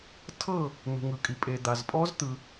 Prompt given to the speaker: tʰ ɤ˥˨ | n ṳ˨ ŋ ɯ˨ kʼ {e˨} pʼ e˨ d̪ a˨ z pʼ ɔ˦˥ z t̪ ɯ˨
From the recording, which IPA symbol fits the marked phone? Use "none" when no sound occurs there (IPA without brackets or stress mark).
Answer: i˨